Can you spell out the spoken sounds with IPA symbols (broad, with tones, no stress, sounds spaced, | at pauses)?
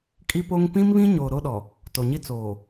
kʼ i˦ p o˦ ŋ p ĩ˦ m β ĩ˦ ɲ o˨ ɾ o˦ ɗ ɔ˨ | t o˨ ɲ i˦ t͡s oː˨